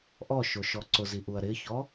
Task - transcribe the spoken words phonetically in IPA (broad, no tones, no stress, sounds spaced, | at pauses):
ʔ ɔ ʃ o ʃ ɔ ǀ ʊ z i ʔ u ɐ̯ ɾ ɪ ç ɔ